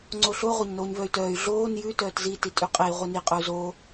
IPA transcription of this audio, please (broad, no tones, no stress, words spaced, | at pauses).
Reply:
ŋ͡ǀoɬo ʁʷaɲnoːɲvœy̯tœːy̯ ɮoːn jʉ tœːtzi titʼyqʼei̯ ʁʷini qʼœu̯zoː